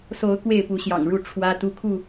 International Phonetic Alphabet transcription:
so˨˦ʊ̯ kwe˥˨ɪ̯pu˨˦ɕjɑ̰˨˩ŋɻu˥˨ ʈ͡ʂʰwä˦ t̪u˦kʰu˥˨

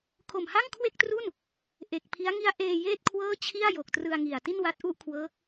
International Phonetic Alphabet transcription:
kʰo˨˩mha˥˩ŋkʰwe˥˩k̚tru˥˩n | ʔe˨˩k̚pʰi˦˥a̯ ŋi˦˥a̯ʔeː˧ jeː˥˩t̚kʰwɤː˥˩ t͡ɕʰi˥˩a̯jo˨˩k̚trɯ˧a̯ŋi˨˩a̯ ti˥˩nwa˦˥t̚ʔu˥˩ʔkʰwɤː˦˥k̚

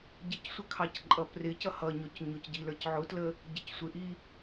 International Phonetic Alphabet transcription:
ɟɪcsʷəkʰɑc ǃʼʌprɪ cʌhʌɲɔc ɲʊcɟilə˞c ʕʊtlə | ɟɪcsʷɪʔi

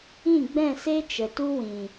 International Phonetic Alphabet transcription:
ĩ˦˨ɡ͡bɛ̃˦˨se˦ t͡ʃə˨tu˦wĩ˨

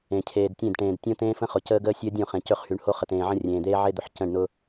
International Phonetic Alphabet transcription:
ẽ˨cʰeː˨dtʲẽ˦˨dʈẽː˨d tʲõ˦tẽː˦fə̃˦χʊ˨ cəː˦ɡəː˦sʲəː˦dʲõ˦˨ χẽ˨cɵ˦˨χhy˨˦ɳho˦ χə˨tẽː˨ʕə̃˦ rʲẽː˨d̪eː˦ʕe˦d̪ʊ˨ħ cə̃˦˨ɳ nʊ˦

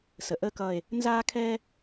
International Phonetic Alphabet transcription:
sə˧ ʔəː˥kʌː˥˧e̯ | nzaː˥kʰɛː˥

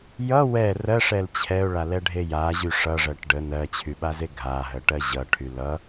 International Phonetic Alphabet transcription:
jʌ wɛ rɜʂɛl t͡ɕʰɛʊ̯ɭalɛɖʱe jaʑy ʂʌʐɜʈ ɖə nɜt͡ɕʰyɓaze ɡʱaɦɜʈɜ ʑʌʈʰy lʌ

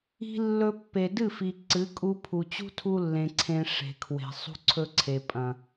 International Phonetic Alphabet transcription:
i̤˧ lːɵ˧pːe˨ dɨ˦˨fi˨ ǀɨ˨˦ kʼu˦pʰu˧ t͡ɕṳ˦tʰu˧lːẽ˨ ǀʰẽ˧ʂe̤˨kʰwe̤˨ sˤṳ˧ǀʰɵ˧ ǀʰe˨pʼɐ̃˨

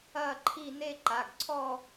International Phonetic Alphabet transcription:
ɐː˥˧ǃʰi˥˧ ne˥˧ǃa˩˧˩ɡǀʰɔ˥˧

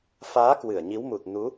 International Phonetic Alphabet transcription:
faː˨˦ kwɨ˧˩ə̯ɲi˨˦wmu˨˩t̚nu˨˦

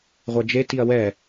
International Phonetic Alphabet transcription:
ʁʷɛd͡ʒe tiɐ̯wɛ

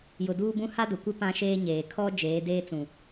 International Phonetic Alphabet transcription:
jʊ˨duː˦bũ˦ ha˦dʊ˨kʷɪ˦ pã˦ʃeː˦ɲeː˨ kʰɔ˦ d͡ʒeː˨˦ deː˦t͡sũ˨

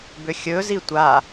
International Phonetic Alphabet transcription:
bʏxʲɵzi tʷa

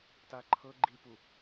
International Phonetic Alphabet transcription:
taǃʰɤ ɡ͡ǃipu

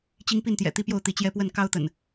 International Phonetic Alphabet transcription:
t͡ɕi˦ŋ pi˥˨nt̪jɛ̰˨˩t̪i˦pjo˥˨ʊ̯ t̪i˨˦t͡ɕjɛ˦pwə˥˨n kɑ˦ʊ̯t̪ə̰˨˩n

